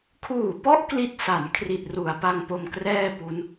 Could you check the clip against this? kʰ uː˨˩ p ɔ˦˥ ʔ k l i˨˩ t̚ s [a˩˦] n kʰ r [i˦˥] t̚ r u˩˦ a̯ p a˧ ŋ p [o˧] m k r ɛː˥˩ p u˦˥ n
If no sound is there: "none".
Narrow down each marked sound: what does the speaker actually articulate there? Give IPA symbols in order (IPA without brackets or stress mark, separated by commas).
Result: a˩˦, i˨˩, o˧